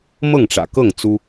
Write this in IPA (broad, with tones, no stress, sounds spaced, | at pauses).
m ɤ˥˩ ŋ ʈ͡ʂ ä̰˨˩ k ɤ˥˩ ŋ t͡s u˥